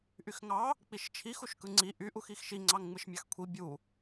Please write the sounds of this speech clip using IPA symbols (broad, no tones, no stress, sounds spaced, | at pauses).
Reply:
ʔ y x ŋ ɑ | k͡p i ʃ t͡ʃʰ i x u ʃ k ɯ ŋ͡ǀ i ʔ y ʔ u x i x ʃ i ŋ͡ǀ ɑ ŋ ŋ͡m ɯ ʃ mʲ ɑ x kʷʰ i bʲ u